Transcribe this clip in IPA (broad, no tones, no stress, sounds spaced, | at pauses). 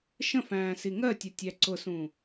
ʃ ə̃ f æ̃ː s i ŋ ɜ tʲ ʌ tʲ æ ǀ ʊ s ũ